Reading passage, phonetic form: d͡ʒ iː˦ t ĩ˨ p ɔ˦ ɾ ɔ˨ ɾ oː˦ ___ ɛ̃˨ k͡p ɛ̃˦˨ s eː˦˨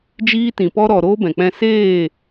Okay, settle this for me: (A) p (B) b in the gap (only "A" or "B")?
B